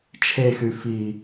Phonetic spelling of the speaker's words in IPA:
t͡ʃʰexy fi

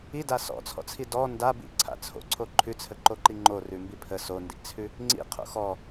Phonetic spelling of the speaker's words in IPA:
ida sɔ̰t͡sʰɔ̰t͡sʰi dɔ nda bḭǀʰa̰ t͡sʰo̰ǀʰo ǃʰʉt͡sʰəǃoǃi ŋ͡ǃorʉmbi pʰə sondḭt͡sʰʉ | ŋ͡ǀḭqʰo̰ xɔ

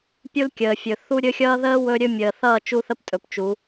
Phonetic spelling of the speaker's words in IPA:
pʲu˦lkʲəː˨ fʲɵ˨θu˦ ɾʲɵ˦xʲʌː˦ ðəː˦ wɵ˦ɾʲɵ˦mʲəː˨ θʌː˦˨ t͡ʃu˦θə˦ptʼɵ˨pt͡ʃu˨˦

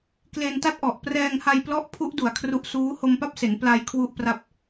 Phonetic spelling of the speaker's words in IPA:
kle˧nta˥˩t̚ʔɔ˨˩ʔ prɛː˧ŋha˧jplɔ˦˥ʔ pʰu˦˥ʔ du˨˩a̯ kʰru˦˥ʔsuː˦˥ ho˧mpa˥˩p̚se˩˦n pla˧j kʰwu˥˩ʔpra˥˩p̚

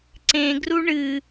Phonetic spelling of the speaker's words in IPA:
ǀẽɡru ɳɨ

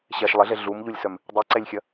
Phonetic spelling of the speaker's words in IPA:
ɕɛʃ lˠɪɮe ɮumʎulʲsœm | dˤiǀɛlʲxʲɐ

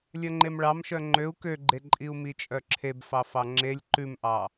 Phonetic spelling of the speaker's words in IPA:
lʲœŋ͡ǃemɭɑmʃœ ŋ͡ǃøu̯ køɡ͡ǃeǃʼiu̯ mit͡ʃʼœǁʰeb fɑfɑŋ͡ǁelʲ ǃʉmʔɑ

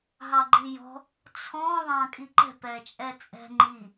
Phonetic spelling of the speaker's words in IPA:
ɦɑɡ͡ǃijɔ̤ | t͡sʰɔ̃ ðˤɑ̃kʼiǃɛ̤ pɛt͡ʃʼɛt͡sʼɛ̤ ŋ͡ǃi

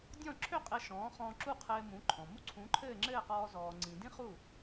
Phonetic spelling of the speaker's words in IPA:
dʲɔ̃˥˩ǁʰø˥ qʼɘ˧ʃɔ̃ː˩˥χɔ̃ː˧ ǁu˥˩qʰɘː˧mũ˩˥ ǃʰɔ̃˩mu˥˩ ǀʰũ˩˥ǃʰɘː˥˩ŋ͡ǁɘː˥˩qɔː˧ zɔː˩ŋ͡ǀĩ˩ dĩ˥χu˥˩

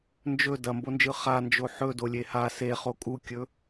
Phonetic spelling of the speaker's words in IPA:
nd͡ʒɵ dɐmbond͡ʒɯ χand͡ʒo ħɵdolʲe ha seχo kʼukʲɵ

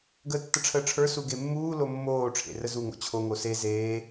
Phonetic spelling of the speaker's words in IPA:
ɡəːtːəʈ͡ʂʰəːʈ͡ʂʰə˞ suɡemːuː lomːoː ʈ͡ʂʰḛrəzu ŋo̰t͡ɕʰo ŋose zeː

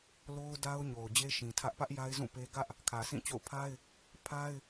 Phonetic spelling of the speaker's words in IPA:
lo˦ʊ̯da˦ʊ̯ ɲo˨ʊ̯d͡ʑe˦ʃĩ˨tʰä˦ʔ pä˦ʔja˦ɪ̯zũ˦˨pe˦ ɡä˦ʔ | kʰä˨sĩ˦˨t͡ɕo̰˦˨ʊ̯ pʰa˦ɪ̯ | pʰa˦ɪ̯

